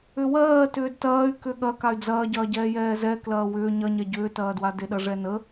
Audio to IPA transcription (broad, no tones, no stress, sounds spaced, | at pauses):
ʏ w ɜː t ʏː d t ɐː y̯ k ʏ ɠ ɐ k a y̯ d͡z ɐː ɟ ɐː ɟ ɛː j ɛː z ɛ k l ɐː w ʏː ɲ ɐ ɲ ɛ ɟ ʏː t ɐː d w a d e ɗ ɐ ʐ ɛ n ə